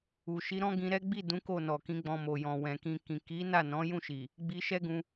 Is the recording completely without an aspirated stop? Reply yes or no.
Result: yes